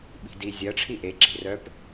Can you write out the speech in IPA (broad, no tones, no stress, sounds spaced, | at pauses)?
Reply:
ɓ i̤ d i zʲ ɐ ʈ͡ʂʰ i ʔ e ǁ i̤ r œ p